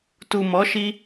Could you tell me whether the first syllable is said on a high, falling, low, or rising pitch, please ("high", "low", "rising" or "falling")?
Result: low